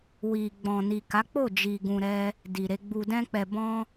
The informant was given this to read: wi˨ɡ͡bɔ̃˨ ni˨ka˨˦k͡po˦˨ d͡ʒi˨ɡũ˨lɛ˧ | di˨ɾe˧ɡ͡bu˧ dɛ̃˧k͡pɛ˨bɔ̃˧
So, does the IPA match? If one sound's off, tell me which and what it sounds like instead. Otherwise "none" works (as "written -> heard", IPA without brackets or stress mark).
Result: l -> ɾ